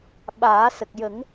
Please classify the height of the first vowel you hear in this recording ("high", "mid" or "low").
low